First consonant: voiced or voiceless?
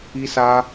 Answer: voiceless